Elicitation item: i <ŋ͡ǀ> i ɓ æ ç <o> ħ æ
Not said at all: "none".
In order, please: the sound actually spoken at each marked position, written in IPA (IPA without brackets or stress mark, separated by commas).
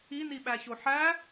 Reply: n, o